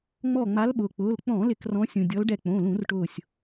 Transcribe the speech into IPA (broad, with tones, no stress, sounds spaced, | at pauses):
ŋ͡m ɔ˧˩ ŋ͡m a˨˦ l ɓ ʊː˩ k͡p ʊː˩˧˩ l k͡p ɔ̃˧˩˧ l ɪ˧˩˧ k r ɔ̃˨˦ sʲ ũ˩ dʲ ɔ˨˦ l ɖ ɛ˧˩ k͡p õ˩˧˩ l ũ˧˩˧ r ʈ ʊː˧˩ sʲ